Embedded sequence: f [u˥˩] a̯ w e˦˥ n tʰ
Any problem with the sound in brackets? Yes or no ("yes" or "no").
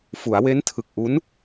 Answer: yes